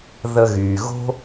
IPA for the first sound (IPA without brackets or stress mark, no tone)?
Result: ð